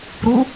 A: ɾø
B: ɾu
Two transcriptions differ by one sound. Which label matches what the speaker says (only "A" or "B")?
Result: B